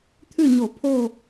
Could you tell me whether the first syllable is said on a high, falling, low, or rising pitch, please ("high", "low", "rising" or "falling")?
falling